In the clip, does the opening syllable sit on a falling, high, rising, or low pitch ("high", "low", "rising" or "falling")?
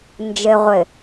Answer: low